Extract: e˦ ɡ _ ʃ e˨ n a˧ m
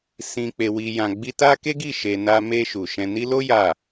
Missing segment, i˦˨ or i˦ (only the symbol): i˦˨